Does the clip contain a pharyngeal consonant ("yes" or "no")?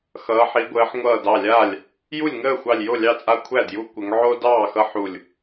yes